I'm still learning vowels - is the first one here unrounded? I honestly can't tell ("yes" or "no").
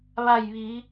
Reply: yes